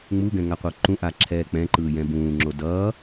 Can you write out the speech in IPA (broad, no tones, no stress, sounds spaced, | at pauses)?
ŋ͡m u ɡ ɛ̃ ŋ a qʷ ʌ ǃ ũ ʔ a ǁʰ ɛː k͡p ɛ̃ ǃ ɯː j ɛ̃ b ũː ŋ͡ǁ o d ʌː